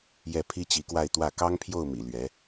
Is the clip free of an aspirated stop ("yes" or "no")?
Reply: no